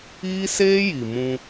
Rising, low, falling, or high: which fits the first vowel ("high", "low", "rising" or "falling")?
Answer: high